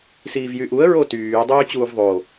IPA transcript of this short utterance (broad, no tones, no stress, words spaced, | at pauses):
siːvjyʔuə̯ ɹotyː dˤyːt͡ɕuːvðˤo